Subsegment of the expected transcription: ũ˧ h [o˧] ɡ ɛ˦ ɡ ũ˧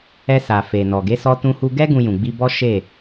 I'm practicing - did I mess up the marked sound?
yes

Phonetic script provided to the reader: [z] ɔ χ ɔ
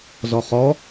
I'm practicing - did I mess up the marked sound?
no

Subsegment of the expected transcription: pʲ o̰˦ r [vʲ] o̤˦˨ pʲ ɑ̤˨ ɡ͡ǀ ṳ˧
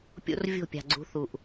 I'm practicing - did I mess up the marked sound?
no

